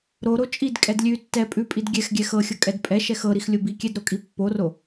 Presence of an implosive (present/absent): absent